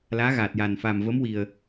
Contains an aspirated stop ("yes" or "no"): no